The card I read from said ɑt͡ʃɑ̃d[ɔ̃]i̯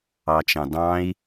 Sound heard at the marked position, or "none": ɑ̃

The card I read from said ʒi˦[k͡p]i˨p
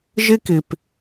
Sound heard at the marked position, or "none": k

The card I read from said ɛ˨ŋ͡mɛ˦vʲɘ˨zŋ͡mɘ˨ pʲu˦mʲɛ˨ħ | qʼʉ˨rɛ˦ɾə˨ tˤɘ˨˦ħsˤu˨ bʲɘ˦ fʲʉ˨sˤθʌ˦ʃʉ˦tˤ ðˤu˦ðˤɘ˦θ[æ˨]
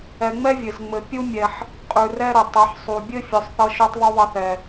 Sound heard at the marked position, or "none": ɛ˨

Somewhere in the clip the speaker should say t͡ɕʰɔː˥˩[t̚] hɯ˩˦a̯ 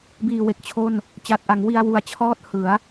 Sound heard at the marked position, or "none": t̚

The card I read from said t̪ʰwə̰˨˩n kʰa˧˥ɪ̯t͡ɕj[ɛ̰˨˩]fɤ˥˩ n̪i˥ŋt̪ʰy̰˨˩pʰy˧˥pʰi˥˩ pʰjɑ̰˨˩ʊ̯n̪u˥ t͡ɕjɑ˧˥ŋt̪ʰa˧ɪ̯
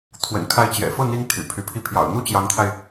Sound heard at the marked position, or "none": ɛ̰˨˩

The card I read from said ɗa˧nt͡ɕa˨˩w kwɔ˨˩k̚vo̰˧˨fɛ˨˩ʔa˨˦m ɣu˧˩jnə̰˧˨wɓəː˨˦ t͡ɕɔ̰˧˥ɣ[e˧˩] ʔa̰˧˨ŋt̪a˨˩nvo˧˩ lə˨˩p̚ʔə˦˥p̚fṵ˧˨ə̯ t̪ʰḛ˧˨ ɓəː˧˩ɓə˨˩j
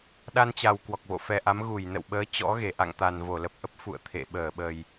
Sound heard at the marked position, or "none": e˧˩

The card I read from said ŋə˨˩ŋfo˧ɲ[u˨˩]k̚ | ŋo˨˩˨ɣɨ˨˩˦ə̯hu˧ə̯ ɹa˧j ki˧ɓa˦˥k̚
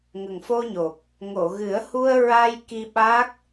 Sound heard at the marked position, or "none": o˨˩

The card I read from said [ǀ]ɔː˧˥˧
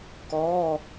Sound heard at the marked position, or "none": k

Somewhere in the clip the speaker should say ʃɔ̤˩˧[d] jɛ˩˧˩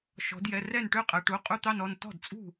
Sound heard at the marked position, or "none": d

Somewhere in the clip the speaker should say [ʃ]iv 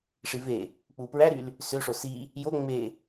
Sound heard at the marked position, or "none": ʂ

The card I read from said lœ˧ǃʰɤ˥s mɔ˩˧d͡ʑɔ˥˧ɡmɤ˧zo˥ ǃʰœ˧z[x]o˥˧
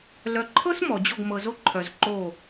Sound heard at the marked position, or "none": ǃ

